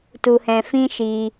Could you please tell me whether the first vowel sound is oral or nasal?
oral